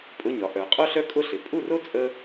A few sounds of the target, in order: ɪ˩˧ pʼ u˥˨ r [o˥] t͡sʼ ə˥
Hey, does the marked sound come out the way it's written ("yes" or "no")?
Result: yes